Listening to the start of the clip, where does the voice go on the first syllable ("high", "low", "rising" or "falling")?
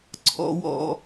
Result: low